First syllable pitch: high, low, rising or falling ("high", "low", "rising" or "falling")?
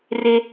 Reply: high